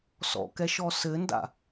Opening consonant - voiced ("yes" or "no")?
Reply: no